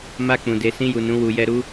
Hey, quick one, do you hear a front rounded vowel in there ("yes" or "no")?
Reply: no